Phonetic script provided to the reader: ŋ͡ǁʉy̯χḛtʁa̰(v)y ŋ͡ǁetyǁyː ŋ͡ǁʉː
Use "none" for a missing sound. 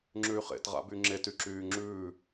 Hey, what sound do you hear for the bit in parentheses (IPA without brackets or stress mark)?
b